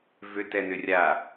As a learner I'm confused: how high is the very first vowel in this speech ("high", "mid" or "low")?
high